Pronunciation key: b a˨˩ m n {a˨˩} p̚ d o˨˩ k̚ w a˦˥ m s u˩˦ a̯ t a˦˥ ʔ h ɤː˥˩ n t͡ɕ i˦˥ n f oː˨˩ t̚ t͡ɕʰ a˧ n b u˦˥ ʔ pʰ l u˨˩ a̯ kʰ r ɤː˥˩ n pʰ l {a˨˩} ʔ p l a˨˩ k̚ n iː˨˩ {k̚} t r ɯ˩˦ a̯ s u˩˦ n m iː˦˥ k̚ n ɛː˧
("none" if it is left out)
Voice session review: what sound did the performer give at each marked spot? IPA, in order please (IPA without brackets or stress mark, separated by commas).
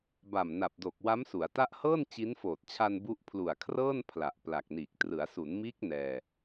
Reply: a˨˩, a˨˩, k̚